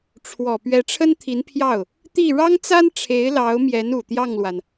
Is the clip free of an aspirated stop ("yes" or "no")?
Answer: no